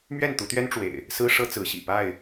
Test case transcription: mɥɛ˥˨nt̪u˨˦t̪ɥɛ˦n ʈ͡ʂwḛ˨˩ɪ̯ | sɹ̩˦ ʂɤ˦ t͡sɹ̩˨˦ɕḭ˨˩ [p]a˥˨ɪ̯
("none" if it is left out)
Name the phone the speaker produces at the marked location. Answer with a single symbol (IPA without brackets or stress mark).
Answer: p